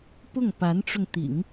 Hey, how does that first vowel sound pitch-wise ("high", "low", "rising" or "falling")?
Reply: falling